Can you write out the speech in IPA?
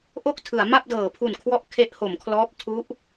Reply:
ʔ o˥˩ k̚ tʰ ɯ˩˦ a̯ m a˥˩ p̚ d ɤː˩˦ pʰ u˨˩ n kʰ w ɔ˦˥ ʔ kʰ e˦˥ ʔ h o˩˦ m kʰ l ɔː˦˥ p̚ tʰ u˦˥ ʔ

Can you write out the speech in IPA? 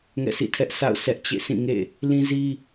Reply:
ŋ ɛ̰˦˨ s ḭ˦˨ tʰ ɛ˦ ʔ sʰ a̰˦˨ ʊ̯ sʰ ɛ˦ ʔ t͡ɕ ḛ˦˨ sʰ ĩ˦˨ ŋ ḛ˦˨ | l ĩ˦ z i˦

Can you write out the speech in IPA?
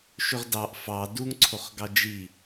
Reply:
ʃ ø ʁ d ɑ ʔ f ɑ d u ŋ ǀʰ o χ ɡ ɑ d͡ʒ i

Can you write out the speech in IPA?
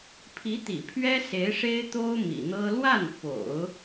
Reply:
pʰ i˧˥ t̪ ḭ˨˩ pʰ ɥ ɛ˥ s e˧˥ ɪ̯ ʂ e˥ ɪ̯ t̪ o˥ ʊ̯ m ḭ˨˩ n̪ ɤ˥ l w a˥˩ n f o̰˨˩˦ ʊ̯

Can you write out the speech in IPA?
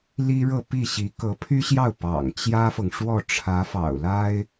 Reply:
l i˥ ɻ ɤ˥˧ p i˥˩ ɕ i˧˥ k ɤ˧˥ pʰ y˥ ɕ j ɑ˥˩ ʊ̯ p ɑ̰˨˩ ŋ t͡ɕ j ä˥ f ɤ˨ ŋ ʂ w ɔ˥˩ ʈ͡ʂʰ ä˧˥ f ɑ̰˨˩ ʊ̯ l a˥ ɪ̯

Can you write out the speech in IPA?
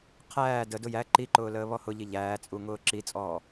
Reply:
qʰ æː d ə d ʊ j æ ǃ i ǃ ʊː l əː β ɔ h ʊ ʎ i ʎ æː t͡sʼ u ŋ ʊː ǁ i t͡sʼ ɔː

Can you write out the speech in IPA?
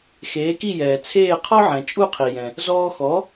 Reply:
x eː˩˥ k i˥˩ j ɛː˩ t͡sʰ eː˥˩ qʰ ɔ˥ ʕ ɛ̃˩ t͡ʃʼ u˥˩ qʰ i˩ j ɛ̃˩ | z ɔː˧ x ɔ˩˥

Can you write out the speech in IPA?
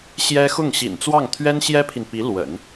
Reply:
ɕ j ɛ˥ x ʊ˥˩ ŋ ɕ ḭ˨˩ n t͡s w ɑ˥˩ ŋ t̪ʰ ɥ ɛ˥ n ɕ j ɛ˥ pʰ i˨ n p i˧˥ l w ə̰˨˩˦ n

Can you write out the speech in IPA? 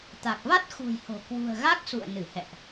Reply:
t̪ a˨˩ k̚ v a˦˥ t̚ x ṳ˨˩ j h o̤˨˩ k w ṳ˨˩ ə̯ ɣ a˦˥ k̚ s ṵ˧˨ ə̯ n ɨ˧˩ h ɛ̰˧˨ ʔ

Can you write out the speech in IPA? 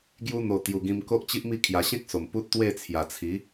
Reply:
ɡ j u˧ n̪ o˨˩ t̪ j u˨˩ ɡ ĩ˧ m k o˦ ʔ t͡ɕ i˦ ʔ m i˥˧ kʰ j a˨˩ ɕ ẽ˦ k̚ s o˨˩ m p u˦ t̚ t̪ w e˥˧ t͡sʰ j a˨˩ t͡sʰ i˨˦

